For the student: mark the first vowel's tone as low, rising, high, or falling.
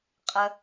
low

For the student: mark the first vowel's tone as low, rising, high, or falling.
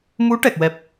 rising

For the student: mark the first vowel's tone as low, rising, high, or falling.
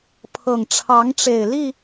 low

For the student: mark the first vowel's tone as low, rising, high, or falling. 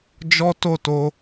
high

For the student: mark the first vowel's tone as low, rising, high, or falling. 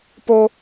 high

